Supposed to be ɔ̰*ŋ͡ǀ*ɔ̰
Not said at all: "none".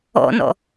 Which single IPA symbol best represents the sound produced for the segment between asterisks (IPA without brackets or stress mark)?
n